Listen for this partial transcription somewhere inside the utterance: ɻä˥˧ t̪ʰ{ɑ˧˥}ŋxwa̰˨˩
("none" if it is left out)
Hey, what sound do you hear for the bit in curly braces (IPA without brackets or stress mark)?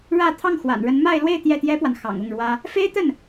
ɑ˥˩